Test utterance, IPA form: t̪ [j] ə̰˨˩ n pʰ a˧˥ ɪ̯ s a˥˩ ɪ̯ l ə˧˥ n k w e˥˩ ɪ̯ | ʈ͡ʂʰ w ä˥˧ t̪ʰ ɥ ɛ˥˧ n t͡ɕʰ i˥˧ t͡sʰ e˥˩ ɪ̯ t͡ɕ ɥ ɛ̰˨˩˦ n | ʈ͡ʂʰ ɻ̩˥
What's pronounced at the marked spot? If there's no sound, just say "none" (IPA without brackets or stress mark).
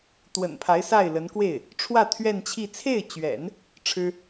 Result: w